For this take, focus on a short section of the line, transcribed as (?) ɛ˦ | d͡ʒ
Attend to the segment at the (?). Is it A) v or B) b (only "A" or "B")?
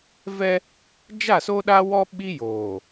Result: A